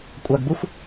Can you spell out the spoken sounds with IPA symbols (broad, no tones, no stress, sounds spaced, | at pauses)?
kʷʼ a ɡ b u xʷ